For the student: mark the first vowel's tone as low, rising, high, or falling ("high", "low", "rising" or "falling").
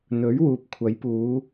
rising